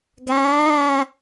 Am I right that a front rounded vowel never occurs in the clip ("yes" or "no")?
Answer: yes